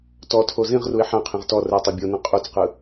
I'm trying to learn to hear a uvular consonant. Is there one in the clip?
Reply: yes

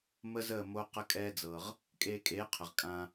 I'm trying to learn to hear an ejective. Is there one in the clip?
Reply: yes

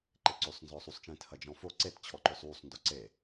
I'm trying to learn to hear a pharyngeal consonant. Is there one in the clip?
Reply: no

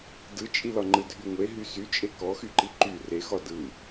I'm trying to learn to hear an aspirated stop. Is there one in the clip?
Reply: no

